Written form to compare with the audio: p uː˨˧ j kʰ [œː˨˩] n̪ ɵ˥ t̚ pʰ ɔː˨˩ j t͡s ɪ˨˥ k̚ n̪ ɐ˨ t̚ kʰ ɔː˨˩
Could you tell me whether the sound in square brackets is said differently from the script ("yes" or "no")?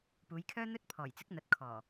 yes